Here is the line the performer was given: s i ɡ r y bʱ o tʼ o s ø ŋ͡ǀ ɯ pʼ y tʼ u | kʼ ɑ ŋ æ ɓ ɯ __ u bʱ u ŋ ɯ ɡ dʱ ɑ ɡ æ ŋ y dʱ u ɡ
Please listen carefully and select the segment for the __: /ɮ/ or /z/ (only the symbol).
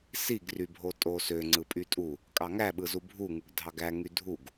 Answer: z